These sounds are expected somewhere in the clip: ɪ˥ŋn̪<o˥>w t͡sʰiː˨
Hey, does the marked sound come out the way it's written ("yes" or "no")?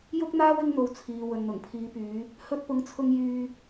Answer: no